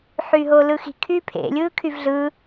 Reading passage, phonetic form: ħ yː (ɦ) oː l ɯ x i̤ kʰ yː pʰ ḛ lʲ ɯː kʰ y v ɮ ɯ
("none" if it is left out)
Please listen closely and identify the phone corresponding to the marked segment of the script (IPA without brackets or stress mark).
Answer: ɦ